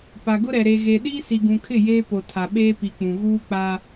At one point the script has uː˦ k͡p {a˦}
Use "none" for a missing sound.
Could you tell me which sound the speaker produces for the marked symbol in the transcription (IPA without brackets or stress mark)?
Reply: a˦